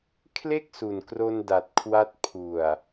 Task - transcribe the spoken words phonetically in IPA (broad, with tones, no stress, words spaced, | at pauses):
kʰle˥˩k̚su˨˩nkro˧nda˨˩t̚ kʰwa˦˥t̚ pʰu˨˩a̯